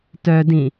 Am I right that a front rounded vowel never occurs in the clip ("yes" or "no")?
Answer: no